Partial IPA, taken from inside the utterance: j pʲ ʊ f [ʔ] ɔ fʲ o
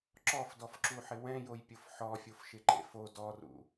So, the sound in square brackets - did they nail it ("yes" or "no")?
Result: no